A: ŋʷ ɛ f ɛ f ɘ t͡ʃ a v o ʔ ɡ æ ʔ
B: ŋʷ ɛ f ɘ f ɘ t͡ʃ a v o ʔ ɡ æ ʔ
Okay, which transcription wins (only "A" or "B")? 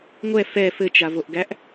A